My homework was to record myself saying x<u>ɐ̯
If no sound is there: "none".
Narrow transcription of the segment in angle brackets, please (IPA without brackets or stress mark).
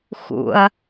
ṵ